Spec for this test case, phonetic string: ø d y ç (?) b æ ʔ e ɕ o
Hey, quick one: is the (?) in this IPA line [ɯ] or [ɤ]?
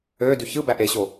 ɯ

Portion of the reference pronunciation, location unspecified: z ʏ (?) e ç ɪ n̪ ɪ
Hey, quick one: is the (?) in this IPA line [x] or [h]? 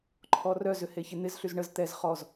h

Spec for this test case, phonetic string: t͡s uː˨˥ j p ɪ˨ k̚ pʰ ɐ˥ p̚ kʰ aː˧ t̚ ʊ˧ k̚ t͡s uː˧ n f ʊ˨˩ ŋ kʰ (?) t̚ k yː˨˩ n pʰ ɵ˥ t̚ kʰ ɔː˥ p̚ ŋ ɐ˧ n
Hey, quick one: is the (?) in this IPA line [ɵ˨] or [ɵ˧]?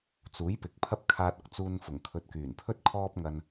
ɵ˨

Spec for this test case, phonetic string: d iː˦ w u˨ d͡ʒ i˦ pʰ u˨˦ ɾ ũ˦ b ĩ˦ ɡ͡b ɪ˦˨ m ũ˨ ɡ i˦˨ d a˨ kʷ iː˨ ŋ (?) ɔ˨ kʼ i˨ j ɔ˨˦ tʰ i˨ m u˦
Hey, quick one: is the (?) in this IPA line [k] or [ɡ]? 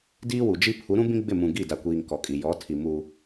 k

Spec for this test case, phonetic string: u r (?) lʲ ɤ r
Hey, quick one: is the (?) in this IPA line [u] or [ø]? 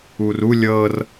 u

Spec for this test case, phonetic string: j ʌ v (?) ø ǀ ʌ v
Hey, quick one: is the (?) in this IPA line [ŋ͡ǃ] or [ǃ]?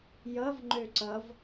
ŋ͡ǃ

